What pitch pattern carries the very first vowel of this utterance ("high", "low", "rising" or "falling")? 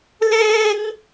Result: high